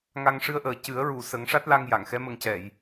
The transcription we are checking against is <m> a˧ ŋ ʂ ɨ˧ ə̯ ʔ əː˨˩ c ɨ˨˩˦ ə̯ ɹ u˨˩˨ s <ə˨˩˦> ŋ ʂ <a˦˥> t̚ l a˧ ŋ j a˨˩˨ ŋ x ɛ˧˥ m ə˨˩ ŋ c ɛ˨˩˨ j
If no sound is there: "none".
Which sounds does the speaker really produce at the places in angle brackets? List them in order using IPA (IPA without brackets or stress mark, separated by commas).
ŋ, ə˨˩˦, a˦˥